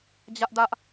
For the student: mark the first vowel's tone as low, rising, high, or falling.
high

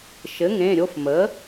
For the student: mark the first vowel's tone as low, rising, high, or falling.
rising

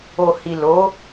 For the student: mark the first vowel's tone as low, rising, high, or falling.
low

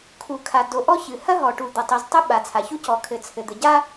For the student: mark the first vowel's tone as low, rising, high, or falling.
low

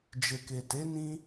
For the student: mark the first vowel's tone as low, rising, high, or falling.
low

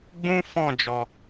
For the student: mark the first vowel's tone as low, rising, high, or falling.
high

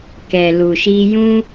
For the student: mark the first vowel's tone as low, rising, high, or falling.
low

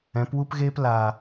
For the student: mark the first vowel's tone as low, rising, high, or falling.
rising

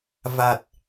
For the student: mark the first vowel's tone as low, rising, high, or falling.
low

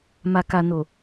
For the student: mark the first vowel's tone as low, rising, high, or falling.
low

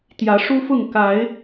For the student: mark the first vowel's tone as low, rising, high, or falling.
rising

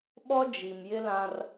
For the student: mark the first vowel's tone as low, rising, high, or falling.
high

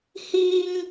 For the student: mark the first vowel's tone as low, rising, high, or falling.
high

